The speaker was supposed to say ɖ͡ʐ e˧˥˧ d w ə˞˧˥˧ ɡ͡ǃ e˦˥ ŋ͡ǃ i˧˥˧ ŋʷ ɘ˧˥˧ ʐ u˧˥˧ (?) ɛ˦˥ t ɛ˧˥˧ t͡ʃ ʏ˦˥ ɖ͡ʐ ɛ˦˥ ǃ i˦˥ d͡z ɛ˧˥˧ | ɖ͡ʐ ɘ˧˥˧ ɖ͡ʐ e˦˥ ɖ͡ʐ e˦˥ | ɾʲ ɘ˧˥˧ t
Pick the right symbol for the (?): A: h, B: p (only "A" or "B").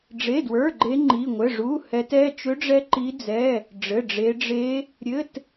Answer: A